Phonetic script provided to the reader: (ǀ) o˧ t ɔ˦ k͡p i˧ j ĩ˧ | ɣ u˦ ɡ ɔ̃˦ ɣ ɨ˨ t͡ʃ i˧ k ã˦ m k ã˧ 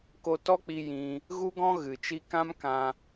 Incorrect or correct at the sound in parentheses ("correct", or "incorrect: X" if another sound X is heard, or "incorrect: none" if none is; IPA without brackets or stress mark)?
incorrect: k